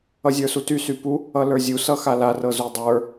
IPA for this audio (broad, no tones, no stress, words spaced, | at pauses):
ʌzʲə˞sutys ypu | ʌlə˞zʲu sʌxala rɤzudˤə˞